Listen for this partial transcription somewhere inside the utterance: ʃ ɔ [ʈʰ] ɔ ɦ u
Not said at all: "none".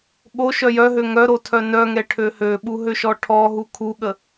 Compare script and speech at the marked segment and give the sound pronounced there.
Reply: ʈʰ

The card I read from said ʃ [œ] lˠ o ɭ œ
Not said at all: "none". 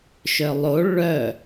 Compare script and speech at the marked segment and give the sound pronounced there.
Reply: œ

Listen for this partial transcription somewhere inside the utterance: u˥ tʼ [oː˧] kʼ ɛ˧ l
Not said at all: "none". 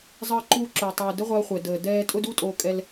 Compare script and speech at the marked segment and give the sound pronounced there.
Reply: oː˧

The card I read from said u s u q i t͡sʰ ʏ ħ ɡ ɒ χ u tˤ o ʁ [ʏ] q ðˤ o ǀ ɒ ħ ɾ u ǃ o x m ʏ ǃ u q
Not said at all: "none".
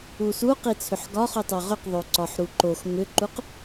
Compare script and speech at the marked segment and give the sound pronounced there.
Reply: ʏ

